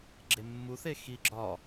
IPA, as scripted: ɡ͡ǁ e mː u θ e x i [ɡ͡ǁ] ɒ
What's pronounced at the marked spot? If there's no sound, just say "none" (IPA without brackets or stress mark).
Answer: ɡ͡ǁ